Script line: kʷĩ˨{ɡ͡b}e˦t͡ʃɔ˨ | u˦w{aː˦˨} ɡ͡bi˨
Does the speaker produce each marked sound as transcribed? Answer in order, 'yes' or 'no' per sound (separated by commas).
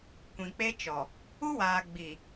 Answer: no, no